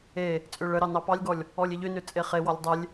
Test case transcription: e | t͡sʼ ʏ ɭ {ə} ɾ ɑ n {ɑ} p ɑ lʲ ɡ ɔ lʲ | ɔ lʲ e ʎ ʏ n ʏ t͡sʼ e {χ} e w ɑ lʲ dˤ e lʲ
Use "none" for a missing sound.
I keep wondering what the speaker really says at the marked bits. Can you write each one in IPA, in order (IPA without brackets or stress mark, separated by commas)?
ə, ɑ, χ